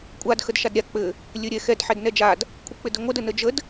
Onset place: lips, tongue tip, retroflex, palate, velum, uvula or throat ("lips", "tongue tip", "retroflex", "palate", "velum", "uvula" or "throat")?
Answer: velum